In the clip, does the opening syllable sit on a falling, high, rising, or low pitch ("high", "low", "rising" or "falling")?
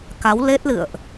rising